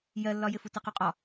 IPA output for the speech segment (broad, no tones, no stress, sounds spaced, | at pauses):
j ɜ lː ɒ j ɪ f u t ɪ q u qʼ ɒ